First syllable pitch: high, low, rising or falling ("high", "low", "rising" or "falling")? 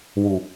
low